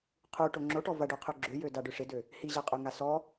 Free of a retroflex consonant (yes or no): no